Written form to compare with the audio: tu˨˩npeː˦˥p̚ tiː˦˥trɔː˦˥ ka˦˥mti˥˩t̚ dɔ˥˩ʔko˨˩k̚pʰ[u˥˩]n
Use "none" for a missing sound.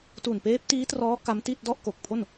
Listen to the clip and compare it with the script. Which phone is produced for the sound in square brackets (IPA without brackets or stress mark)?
o˥˩